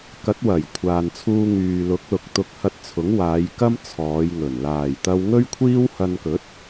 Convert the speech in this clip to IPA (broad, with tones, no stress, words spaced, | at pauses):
kɐ˨˥t̚wɐ˨˩j kʷʰaː˨nt͡sʰuː˧ ŋyː˨lʊ˨˥k̚lʊ˨k̚t̪ʊ˧k̚ hɐ˧t̚t͡sʰʊ˨˥ŋwaː˨˧j kɐ˥mt͡sʰɔː˨˧jŋɵ˨˩n laː˨˩jt̪ɐ˧wŋɵ˥ɥkʷʰiː˥w hɐ˧nkɵ˨˥t̚